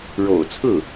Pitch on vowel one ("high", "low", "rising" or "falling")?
low